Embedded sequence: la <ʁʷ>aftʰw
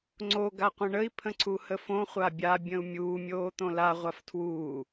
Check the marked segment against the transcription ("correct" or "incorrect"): correct